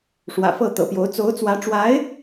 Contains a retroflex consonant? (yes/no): yes